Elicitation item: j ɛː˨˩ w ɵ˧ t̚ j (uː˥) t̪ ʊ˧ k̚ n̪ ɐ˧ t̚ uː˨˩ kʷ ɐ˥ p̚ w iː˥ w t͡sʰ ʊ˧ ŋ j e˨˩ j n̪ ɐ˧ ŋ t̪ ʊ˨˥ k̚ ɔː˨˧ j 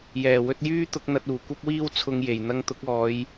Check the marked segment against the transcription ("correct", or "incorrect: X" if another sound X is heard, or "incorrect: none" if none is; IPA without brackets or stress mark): incorrect: yː˥